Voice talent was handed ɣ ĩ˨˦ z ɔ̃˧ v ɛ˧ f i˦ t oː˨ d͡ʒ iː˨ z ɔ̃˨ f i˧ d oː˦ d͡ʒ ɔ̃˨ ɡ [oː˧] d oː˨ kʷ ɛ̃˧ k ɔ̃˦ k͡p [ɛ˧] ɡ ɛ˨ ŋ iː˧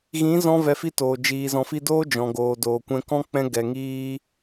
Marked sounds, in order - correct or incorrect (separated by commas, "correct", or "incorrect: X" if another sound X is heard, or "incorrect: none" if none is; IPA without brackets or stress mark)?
incorrect: oː˨, incorrect: ɛ̃˧